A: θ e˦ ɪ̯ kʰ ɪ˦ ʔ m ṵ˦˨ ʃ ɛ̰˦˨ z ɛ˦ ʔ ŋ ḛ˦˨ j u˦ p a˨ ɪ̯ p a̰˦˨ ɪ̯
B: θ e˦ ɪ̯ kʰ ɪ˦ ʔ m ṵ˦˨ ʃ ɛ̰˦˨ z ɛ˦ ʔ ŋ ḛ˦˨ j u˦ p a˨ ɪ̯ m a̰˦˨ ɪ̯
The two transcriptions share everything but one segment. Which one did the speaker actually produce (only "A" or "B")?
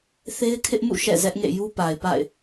A